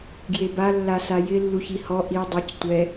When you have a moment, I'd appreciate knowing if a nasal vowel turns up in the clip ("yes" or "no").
no